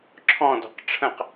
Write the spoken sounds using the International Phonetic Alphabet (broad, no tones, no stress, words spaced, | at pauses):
ǁʰɔ̃dɔ̤q ʈ͡ʂʰə̃q